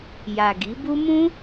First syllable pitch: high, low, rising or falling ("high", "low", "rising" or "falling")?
low